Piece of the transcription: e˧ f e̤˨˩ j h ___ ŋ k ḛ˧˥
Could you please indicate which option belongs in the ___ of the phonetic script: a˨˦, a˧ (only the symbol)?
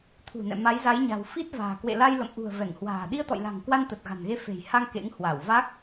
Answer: a˧